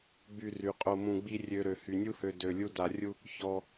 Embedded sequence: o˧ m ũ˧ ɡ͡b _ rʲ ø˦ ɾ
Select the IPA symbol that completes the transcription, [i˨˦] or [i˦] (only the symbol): i˦